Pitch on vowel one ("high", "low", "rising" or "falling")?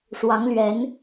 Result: rising